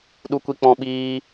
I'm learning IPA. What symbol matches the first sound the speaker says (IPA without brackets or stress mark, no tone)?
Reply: ɗ